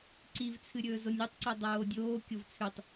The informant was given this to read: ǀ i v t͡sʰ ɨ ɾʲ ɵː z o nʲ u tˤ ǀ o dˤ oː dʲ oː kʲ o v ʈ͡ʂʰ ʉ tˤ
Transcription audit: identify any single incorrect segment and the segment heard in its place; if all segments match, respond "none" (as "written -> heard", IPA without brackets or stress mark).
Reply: ʈ͡ʂʰ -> t͡sʰ